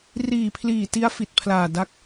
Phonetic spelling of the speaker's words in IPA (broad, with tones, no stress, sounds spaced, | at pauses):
r iː˨˩ pʰ l iː˨˩ t i˦˥ a̯ f i˨˩ t̚ pʰ l aː˨˩ d a˦˥ k̚